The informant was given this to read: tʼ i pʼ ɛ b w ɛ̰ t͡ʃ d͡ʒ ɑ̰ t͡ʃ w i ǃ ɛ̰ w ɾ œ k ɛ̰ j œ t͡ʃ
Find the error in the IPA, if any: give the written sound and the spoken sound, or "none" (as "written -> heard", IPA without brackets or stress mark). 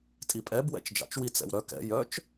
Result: ǃ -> t͡s